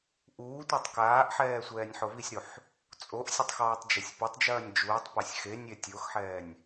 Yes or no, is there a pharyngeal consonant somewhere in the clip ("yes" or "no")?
yes